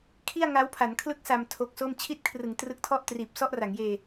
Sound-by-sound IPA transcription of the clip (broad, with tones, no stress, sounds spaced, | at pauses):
kʰ i˥˩ a̯ ŋ a˦˥ w pʰ a˩˦ n kʰ l ɯ˥˩ k̚ s a˧ m tʰ o˦˥ k̚ s o˥˩ m t͡ɕʰ i˦˥ t̚ kʰ r ɯ˩˦ ŋ t r ɯ˦˥ k̚ tʰ ɔ˥˩ ʔ t r iː˨˩ p̚ s ɔ˥˩ ʔ r a˩˦ ŋ j eː˧